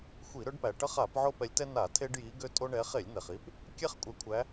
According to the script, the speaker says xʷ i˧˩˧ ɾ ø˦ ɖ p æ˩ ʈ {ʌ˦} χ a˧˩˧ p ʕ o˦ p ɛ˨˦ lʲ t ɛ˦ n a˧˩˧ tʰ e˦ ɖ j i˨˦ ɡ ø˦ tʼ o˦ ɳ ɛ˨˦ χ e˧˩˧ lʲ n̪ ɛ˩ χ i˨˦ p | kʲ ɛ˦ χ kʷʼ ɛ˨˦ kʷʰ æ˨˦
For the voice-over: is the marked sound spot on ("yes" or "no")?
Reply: yes